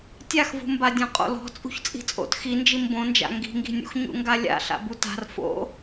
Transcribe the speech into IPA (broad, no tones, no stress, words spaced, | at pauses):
tʲaxvṳmbadʲɔ̃ qʼo̰lɔ̤ t͡sʼṳçt͡sʼi̤t͡sʼo̰t xind͡ʒim bõnd͡ʒa̰ ŋɡi̤ŋɡi̤nʲṵx ɲṵŋɡalʲa̰ ɬa̰buta̤r fo̰